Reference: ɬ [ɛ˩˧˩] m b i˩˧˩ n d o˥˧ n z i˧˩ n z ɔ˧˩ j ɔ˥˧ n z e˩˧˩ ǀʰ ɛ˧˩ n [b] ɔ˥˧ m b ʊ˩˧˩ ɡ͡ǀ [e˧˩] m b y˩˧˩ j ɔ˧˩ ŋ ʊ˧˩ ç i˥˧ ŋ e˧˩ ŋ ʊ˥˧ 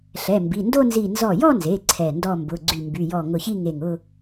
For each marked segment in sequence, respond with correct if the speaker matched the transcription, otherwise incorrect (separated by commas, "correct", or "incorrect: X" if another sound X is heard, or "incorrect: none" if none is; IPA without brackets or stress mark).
correct, incorrect: d, incorrect: y˧˩